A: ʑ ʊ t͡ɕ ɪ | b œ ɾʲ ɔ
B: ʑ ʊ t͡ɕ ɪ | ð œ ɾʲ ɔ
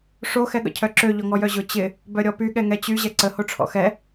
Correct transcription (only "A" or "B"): A